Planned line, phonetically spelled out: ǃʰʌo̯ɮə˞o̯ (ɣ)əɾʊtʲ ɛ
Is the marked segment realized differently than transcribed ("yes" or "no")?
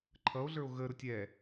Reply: no